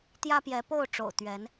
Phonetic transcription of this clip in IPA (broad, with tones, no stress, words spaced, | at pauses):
t̪jä˦pjɛ˨˦ po˥˨ʊ̯ʈ͡ʂo̰˨˩ʊ̯ t̪ɥɛ˨˦n